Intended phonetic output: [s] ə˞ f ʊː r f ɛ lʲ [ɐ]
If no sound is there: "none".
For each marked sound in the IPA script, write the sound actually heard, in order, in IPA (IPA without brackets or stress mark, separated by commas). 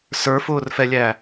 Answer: s, æ